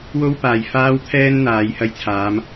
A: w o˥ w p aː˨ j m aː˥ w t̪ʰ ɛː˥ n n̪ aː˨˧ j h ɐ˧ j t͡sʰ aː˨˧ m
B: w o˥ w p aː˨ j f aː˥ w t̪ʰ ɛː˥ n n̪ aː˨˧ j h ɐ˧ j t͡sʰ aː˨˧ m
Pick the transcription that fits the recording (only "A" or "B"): B